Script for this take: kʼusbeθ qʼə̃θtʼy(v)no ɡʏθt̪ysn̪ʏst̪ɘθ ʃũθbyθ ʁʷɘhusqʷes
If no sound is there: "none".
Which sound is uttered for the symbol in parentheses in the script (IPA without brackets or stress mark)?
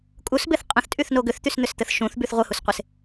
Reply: θ